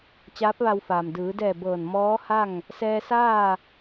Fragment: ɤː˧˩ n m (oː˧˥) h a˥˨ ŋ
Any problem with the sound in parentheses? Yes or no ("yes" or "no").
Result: yes